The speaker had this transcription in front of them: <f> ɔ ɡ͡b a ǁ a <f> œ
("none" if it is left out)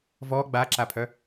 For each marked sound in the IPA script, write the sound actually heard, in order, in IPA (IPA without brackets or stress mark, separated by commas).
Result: v, pʰ